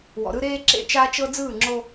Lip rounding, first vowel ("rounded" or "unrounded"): rounded